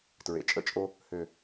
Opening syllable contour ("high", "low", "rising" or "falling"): low